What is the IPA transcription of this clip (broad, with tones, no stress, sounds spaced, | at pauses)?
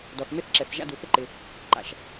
d ɔ˩ θ m e˥ θ ǁ ɛ˩ θ ʒ a̰˥ d u˩ θ ɪ˥ ǃ ɪ˩ | ǃ a̰˩ ʃ